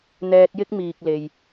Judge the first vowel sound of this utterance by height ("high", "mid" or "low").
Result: mid